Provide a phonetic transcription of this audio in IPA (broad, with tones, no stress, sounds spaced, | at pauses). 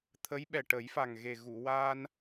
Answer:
t̪ʰ ə˧˥ j ɓ ɛ˨˩ ʈ ə˨˩˦ j f a˨˩ ŋ ɣ e˨˩ ɣ u˨˩˨ w a˧ n